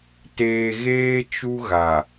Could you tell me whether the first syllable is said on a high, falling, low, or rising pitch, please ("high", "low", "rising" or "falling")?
low